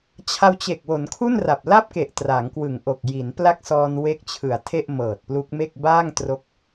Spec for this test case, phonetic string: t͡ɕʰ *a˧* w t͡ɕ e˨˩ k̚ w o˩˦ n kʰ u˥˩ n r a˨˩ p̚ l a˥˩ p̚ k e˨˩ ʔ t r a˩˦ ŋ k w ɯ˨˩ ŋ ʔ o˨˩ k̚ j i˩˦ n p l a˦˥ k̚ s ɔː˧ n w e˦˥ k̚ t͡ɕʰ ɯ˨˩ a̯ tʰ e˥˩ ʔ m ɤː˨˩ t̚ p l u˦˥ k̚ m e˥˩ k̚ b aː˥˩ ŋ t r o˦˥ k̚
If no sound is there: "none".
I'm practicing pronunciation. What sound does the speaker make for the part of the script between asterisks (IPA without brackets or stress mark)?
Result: a˧